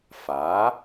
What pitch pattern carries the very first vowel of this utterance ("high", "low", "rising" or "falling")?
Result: rising